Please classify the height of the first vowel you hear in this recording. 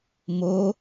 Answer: mid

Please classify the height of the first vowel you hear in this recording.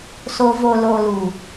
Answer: mid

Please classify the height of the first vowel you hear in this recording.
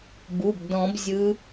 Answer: high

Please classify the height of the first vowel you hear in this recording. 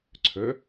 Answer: mid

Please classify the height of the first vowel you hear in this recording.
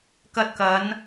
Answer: low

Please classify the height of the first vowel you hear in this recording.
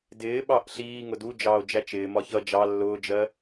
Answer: high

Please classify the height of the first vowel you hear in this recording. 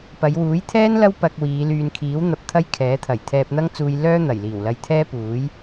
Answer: low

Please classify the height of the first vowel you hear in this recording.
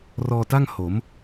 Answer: mid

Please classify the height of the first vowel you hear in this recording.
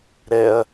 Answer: mid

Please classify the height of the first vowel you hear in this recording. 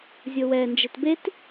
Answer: mid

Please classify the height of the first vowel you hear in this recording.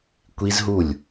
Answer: high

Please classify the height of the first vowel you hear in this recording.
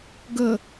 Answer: mid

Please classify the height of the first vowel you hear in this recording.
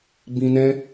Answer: high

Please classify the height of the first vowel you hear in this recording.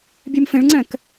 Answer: mid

